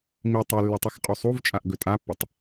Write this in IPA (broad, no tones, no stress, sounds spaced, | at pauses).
m i tˤ e lː ɨ tˤ ɨ x qʼ u sˤ u v t͡ʃʼ a ʔ ɡ ɵ tʼ a pː ɵ tˤ